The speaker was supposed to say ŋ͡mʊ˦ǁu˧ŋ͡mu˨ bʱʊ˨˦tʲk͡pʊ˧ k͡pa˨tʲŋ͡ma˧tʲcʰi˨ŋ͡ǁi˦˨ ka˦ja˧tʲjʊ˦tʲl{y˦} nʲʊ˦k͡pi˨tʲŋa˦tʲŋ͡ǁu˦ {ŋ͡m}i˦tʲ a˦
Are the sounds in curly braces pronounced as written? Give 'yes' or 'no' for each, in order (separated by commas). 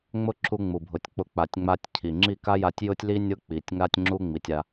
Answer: no, yes